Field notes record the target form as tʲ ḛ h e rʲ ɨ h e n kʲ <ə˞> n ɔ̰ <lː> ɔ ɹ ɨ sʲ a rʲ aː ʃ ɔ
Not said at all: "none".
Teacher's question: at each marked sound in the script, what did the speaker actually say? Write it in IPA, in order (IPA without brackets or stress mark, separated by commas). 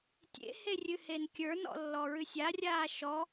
ə˞, lː